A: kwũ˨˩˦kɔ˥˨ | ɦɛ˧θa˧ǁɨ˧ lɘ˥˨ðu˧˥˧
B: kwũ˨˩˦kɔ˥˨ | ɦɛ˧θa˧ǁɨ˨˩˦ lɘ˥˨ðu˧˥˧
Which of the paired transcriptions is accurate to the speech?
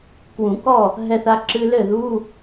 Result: A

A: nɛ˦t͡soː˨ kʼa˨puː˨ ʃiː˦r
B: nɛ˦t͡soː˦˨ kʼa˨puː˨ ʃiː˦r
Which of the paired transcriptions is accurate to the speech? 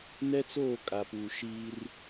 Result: B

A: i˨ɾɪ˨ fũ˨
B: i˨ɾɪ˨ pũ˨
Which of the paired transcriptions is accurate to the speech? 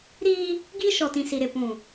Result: B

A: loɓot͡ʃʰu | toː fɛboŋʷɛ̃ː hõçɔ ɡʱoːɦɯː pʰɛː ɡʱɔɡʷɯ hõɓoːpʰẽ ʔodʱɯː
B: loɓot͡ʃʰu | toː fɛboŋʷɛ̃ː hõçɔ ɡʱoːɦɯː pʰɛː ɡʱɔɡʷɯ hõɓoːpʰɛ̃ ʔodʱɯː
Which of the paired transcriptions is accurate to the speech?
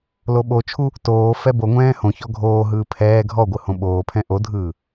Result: B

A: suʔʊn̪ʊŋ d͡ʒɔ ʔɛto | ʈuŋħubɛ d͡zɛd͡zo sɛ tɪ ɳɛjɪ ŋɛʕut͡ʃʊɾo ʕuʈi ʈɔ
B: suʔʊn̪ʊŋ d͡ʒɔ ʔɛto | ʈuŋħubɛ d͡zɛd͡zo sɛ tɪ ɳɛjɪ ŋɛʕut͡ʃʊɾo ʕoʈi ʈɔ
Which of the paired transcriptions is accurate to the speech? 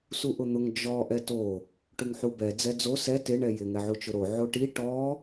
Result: B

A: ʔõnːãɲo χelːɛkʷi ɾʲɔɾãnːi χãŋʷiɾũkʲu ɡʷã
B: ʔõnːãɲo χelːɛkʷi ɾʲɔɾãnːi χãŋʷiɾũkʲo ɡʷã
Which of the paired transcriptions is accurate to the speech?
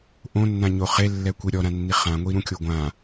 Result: B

